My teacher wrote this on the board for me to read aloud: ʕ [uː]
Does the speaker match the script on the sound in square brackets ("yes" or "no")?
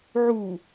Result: no